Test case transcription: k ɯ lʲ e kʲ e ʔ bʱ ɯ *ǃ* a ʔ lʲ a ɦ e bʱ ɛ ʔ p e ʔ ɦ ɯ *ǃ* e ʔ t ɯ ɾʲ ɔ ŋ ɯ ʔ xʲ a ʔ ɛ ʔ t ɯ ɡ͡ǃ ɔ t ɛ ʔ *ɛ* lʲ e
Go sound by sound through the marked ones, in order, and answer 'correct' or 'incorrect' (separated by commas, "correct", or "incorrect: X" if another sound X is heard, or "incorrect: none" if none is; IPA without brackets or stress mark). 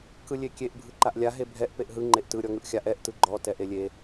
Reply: correct, incorrect: ŋ͡ǃ, incorrect: e